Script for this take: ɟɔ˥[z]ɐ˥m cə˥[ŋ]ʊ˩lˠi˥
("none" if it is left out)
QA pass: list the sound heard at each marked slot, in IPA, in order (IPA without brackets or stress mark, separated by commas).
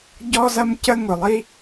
z, ŋ